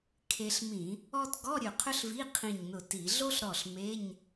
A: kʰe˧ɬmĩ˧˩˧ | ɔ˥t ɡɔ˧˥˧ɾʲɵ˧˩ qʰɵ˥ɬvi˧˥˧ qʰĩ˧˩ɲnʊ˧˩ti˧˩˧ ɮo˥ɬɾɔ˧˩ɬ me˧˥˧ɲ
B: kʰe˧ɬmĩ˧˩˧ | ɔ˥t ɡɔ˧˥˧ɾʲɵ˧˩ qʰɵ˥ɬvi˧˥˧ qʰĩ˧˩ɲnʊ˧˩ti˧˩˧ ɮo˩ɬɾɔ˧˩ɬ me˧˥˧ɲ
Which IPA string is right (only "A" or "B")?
A